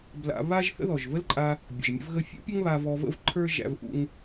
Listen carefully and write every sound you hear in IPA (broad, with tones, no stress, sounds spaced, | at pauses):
b l a̰˧ β a˥ ʒ θ ə̰˥ ð ɔ˩ ʒ v ə˥ l ǃʼ a˧ | bʲ ə̰˩ ʒ mʲ ə̰˧ v ɣ ə˧ fʲ ṵ˥ pʲ ə˥ ŋ β a˧ v ɔ˧ v ə̰˥ v ǃʰ ə˞˥ ʒ æ̰˧ v ʔ ṵ˧ ŋ